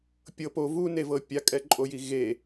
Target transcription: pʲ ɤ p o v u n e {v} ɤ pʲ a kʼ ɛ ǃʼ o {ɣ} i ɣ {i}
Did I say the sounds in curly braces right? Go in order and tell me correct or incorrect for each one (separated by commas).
correct, incorrect, incorrect